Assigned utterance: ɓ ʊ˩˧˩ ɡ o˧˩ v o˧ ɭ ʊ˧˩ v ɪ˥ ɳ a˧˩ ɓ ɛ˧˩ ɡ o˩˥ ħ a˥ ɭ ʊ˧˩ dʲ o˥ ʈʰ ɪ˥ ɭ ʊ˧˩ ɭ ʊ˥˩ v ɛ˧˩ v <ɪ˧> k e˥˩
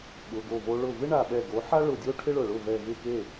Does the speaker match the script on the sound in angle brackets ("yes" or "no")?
no